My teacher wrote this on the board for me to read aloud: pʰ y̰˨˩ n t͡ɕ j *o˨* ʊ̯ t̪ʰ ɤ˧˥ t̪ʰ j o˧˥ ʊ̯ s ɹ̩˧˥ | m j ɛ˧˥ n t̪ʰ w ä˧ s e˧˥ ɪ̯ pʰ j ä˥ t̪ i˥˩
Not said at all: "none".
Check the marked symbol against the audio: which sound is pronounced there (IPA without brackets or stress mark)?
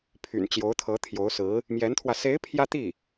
o˧˥